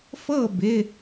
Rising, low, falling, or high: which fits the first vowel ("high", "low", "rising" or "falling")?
falling